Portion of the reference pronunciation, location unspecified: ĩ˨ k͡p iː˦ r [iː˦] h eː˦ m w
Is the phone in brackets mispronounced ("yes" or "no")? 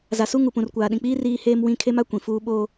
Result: no